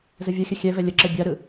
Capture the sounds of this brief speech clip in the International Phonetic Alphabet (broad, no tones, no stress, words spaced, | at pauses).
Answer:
zəvʲɐxʲə xʲɛvɛ lʲəǁɐ bʲaɾɯ